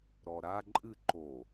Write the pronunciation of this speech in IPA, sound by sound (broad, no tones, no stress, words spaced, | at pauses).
ɾɔɾa ǃʼɨ ǃo